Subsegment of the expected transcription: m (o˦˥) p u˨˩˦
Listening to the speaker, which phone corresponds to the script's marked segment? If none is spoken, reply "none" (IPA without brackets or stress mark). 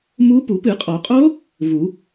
u˦˥